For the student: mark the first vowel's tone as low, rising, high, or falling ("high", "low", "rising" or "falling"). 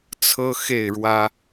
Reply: high